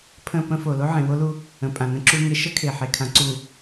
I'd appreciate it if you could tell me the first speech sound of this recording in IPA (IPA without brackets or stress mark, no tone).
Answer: pʰ